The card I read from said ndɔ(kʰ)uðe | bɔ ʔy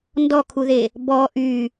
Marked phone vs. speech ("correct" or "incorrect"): correct